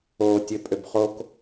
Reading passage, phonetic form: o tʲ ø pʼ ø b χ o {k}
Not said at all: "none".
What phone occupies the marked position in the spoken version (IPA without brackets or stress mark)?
k